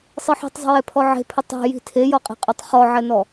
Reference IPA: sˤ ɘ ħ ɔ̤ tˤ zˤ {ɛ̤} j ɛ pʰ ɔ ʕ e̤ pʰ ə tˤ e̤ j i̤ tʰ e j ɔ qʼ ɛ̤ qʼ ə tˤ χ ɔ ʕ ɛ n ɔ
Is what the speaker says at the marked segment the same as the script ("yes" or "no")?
no